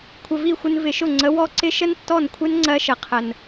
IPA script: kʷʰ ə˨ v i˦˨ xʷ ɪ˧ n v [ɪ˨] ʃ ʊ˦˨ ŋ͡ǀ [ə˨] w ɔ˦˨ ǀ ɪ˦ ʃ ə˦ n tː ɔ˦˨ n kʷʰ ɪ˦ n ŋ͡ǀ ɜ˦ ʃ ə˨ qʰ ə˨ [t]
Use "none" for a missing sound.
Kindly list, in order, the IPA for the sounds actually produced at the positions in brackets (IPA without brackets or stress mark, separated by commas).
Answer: ɪ˨, ə˨˦, n